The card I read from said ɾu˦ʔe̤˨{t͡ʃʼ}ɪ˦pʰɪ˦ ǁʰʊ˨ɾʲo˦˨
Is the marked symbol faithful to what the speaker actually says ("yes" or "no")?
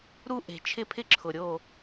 no